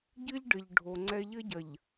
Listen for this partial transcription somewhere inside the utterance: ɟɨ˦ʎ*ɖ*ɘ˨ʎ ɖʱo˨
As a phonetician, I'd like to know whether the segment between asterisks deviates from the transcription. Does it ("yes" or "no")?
no